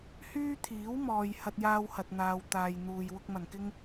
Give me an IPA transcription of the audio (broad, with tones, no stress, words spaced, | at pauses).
hyː˥t̪ʰiː˨˥wmɔː˨j hɐ˧t̚jaː˧whɐ˨t̚ n̪aː˨w t̪aː˨j n̪uː˨j wʊ˧k̚mɐ˨˩nkɪ˥ŋ